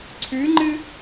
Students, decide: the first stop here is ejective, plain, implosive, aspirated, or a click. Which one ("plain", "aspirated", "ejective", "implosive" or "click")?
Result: click